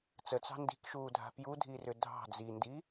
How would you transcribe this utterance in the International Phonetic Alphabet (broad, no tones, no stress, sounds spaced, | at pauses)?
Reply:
t͡s ə t͡s ɑ̤ n d i̤ k ʃ uː dʱ a̤ p j u dʱ i r ʏ dʱ ɑ̤ d͡z i n d i